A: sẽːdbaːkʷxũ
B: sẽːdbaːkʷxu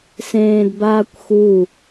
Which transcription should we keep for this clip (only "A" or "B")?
B